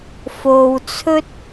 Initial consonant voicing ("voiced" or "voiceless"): voiceless